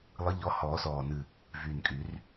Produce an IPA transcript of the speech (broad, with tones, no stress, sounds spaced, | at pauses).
lˠ ɨ˨˦ ʎ ɔ˨˦ h ɔː˨˩˦ s ɔː˨˩ n ɨ˨˩ | v yː˨˩ n kʼ y˨˩˦ r